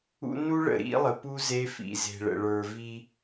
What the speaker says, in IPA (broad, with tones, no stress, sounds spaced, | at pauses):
ṵ˦ n u˦ ɭ ə̰˨ ɾ ḭ˦ lˠ ə˨ p u˦ z e˦ f ḭ˨ z e̤˨ ɭ ə̰˨ ɭ ə˞˨ v i˦